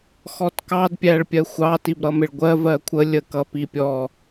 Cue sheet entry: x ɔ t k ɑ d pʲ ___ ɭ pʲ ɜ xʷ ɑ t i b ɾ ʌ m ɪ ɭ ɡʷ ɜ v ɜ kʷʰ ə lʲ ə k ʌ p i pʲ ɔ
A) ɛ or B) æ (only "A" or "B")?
B